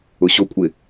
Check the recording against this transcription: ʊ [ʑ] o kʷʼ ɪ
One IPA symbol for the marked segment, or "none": ɕ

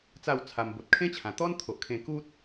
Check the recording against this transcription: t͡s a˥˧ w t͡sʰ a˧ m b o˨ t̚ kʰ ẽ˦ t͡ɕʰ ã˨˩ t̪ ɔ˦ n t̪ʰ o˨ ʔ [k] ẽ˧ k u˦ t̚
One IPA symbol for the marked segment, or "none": kʰ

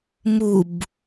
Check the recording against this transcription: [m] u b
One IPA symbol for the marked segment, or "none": m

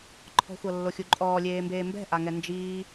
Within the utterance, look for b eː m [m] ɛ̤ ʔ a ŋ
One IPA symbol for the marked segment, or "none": b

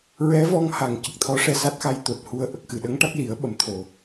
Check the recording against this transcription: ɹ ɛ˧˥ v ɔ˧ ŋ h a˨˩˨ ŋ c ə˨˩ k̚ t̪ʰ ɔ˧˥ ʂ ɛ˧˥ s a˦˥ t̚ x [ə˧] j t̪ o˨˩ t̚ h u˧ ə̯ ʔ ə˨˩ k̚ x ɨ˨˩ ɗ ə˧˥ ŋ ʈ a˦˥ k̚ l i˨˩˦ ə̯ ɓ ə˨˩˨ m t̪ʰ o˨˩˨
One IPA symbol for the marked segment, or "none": a˧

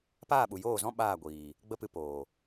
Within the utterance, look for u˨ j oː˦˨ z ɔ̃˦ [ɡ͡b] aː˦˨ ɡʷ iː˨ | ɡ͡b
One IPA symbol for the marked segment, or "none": ɓ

